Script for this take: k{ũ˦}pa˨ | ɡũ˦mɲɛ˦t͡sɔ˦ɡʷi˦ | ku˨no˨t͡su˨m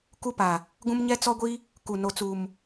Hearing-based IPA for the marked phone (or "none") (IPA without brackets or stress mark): u˦